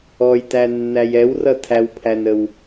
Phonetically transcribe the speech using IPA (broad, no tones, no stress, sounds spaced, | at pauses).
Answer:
ɔ j t æ nː æ j ɛ w r ʌ tʰ æ w pʰ æ n ə w